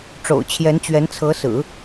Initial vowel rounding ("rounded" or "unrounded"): rounded